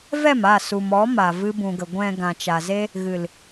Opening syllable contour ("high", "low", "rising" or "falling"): falling